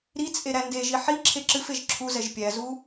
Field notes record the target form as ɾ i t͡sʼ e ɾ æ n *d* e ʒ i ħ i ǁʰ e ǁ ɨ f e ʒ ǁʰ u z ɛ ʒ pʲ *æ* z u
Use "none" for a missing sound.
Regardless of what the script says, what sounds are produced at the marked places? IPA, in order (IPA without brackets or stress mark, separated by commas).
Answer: d, æ